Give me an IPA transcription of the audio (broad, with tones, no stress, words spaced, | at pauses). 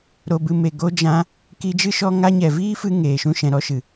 ɾo˧bɨ˧ me˨ ɡo˧d͡ʒã˧ | ki˧d͡ʒɨ˦ʃɔ˧ ŋa˧ɲɛ˨viː˦fɨ˧ ŋeː˨ʃũ˧ʃɛ̃˨ ɾɔ˧ʃɨ˨